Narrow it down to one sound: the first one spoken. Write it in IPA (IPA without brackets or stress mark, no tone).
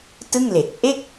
t